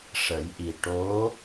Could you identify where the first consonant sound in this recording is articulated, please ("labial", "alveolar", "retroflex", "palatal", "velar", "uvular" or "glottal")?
retroflex